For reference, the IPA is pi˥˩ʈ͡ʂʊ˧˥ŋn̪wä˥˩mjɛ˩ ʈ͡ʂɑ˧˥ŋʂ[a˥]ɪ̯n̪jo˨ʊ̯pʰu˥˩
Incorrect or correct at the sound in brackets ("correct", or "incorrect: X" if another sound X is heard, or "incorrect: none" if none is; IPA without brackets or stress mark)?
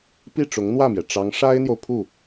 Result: correct